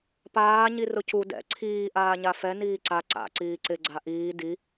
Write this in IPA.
paː ɲirʊcu dɛ̰ ǀʰiː ʔaːɲafɛ niːǀa ǀa̰ ǀiːǀɪ ɡ͡ǀaʔiː di

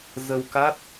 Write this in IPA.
zə˧wka˦˥t̚

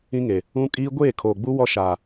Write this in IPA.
ĩ˦ŋe˨ | ũ˦kʼiː˦ ɡʷeː˦˨kʰoː˨ɡ͡bu˦ wɔ˦ʃaː˨

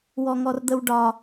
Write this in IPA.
wɔŋɔrd̪əwɖɒ

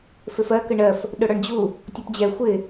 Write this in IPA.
fɪfɜ kəɳɜf | ɗʊɽɔɳd͡ʑu | tʲɔpd͡ʑɛ xʷɪ

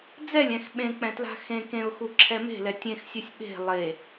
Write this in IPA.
d͡zɛlʲɛ̃x ɓẽk͡pɛ̃ tla̤xẽ kẽʊ̯xu ǁʰɛme̤lɛ tʲẽxsʲœsʲ ɓe̤ lˠe

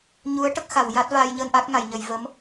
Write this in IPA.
ɲu˧˥ə̯ʈə˦˥k̚xa˨˩˨w ja˦˥t̚vaː˧jɲəː˧n ʔa˦˥k̚ŋa˨˩˨jɲə˨˩˨j və˧˥m

